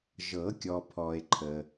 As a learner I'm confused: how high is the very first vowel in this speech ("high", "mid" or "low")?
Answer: mid